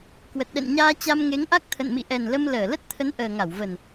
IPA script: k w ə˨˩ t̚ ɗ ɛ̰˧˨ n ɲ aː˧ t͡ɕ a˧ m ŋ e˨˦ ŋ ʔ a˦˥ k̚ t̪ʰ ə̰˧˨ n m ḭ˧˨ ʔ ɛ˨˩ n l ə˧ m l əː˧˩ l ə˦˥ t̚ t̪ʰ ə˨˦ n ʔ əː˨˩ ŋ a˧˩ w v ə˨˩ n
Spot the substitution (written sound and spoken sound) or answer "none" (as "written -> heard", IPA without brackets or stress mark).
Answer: none